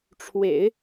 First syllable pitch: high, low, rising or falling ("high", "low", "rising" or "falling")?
low